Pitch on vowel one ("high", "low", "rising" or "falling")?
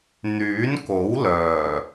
rising